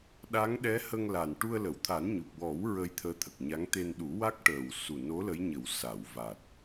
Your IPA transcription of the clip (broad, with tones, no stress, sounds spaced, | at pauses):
ɗ a˧˥ ŋ ɗ ɛ˧˥ h ə˧ ŋ l a˨˩ n ʈ u˧ ə̯ l ə˨˩˨ w t̪ʰ a˨˩˦ n ɲ u˨˩ p̚ w ɔ˨˩˦ w ɹ ə˧ j t̪ʰ əː˧˥ t̪ʰ ə˨˩ k̚ ɲ a˧˥ ŋ t̪ e˧ n ɗ u˨˩˦ w a˦˥ k̚ ʈ əː˨˩ w s u˨˩ n o˧˥ l ə˧˥ j ɲ ə˨˩˦ w s a˨˩˨ w v a˨˩ t̚